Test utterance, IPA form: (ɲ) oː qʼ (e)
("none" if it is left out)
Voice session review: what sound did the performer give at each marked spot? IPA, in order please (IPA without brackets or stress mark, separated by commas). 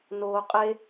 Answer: n, e